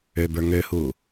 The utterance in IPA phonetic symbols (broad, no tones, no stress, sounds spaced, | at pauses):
ø b ə˞ ŋ ø h uː